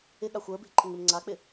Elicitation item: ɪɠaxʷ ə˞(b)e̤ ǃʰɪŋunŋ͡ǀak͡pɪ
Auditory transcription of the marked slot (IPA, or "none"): b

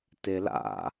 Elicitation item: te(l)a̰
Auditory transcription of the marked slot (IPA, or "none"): l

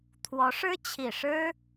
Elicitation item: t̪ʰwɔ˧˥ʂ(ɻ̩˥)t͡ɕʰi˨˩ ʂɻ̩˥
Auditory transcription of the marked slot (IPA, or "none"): ɻ̩˥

